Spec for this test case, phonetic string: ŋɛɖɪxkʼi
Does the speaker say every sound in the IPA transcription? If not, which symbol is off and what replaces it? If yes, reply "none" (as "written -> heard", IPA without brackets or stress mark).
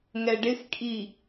none